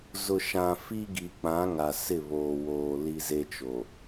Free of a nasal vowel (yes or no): no